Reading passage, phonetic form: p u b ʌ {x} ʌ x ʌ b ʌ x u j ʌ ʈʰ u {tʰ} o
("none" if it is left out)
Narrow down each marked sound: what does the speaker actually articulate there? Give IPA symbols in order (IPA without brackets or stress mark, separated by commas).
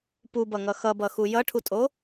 ŋ, tʼ